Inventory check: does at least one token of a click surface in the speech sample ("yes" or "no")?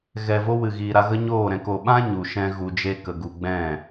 no